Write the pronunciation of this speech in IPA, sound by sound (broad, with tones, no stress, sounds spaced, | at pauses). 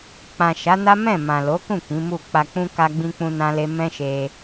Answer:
k͡p ã˨ ʃ a˨˦ n a˦ m ɛ̃˦˨ m ã˨ l o˨˦ k ũ˦˨ k ĩ˨˦ m u˦˨ k͡p a˧ k͡p ũ˦ k a˧ ɡ͡b ĩ˧ k͡p ũ˧ n ã˦ l e˦ m ɛ̃˦ ʃ e˧